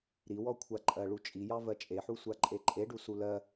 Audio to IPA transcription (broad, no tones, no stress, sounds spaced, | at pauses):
ɾ i w ɔ kʷʰ a ǃʼ ɜ ɭ u t͡ʃʼ i j ɑ v ɜ t͡ʃʼ e ħ u sʷ a ǃʼ e ǃʼ e ɖ u s u l ɜ